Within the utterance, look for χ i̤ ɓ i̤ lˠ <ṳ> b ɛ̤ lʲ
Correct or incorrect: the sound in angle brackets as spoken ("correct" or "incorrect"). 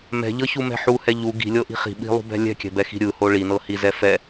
correct